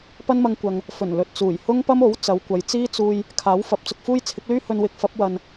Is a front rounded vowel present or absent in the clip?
present